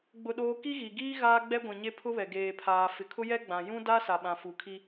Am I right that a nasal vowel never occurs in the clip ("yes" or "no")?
no